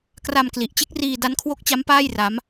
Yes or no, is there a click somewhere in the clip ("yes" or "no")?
no